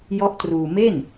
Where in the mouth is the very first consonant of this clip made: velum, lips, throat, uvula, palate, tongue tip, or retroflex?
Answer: palate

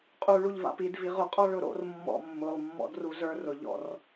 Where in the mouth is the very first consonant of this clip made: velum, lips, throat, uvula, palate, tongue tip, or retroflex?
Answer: uvula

